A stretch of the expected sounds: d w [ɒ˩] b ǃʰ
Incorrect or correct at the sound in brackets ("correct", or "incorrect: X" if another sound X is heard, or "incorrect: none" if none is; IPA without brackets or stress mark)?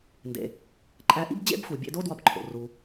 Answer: incorrect: ɒ˧